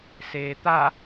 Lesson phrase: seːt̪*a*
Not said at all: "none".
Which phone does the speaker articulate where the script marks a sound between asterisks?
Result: a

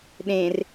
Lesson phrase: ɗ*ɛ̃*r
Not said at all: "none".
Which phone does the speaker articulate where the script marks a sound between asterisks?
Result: ẽ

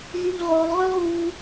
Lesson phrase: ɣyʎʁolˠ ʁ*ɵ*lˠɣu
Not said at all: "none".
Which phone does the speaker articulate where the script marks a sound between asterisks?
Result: ø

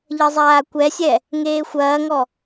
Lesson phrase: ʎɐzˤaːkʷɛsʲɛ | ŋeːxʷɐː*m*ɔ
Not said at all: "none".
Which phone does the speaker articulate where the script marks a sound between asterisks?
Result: ŋ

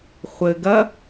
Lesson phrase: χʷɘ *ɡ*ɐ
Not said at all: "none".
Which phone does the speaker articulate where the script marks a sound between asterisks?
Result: ɡ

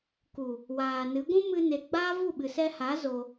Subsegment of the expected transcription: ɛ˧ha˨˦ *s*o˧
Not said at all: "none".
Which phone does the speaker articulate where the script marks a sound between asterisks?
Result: z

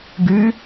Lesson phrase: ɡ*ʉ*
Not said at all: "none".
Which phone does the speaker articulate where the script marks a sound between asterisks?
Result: ʉ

